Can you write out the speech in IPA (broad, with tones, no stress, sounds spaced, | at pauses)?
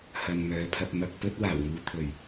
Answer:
h ɐ˨ n m œː˨˧ pʰ ɐ˧ p̚ m ɐ˧ k̚ p ɵ˥ t̚ w aː˨˩ w ŋ uː˨˧ t̪ʰ ɵ˨˩ ɥ